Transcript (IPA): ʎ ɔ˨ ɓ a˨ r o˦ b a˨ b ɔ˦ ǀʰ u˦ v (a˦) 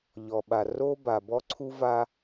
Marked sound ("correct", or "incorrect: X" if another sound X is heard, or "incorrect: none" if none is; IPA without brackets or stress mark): correct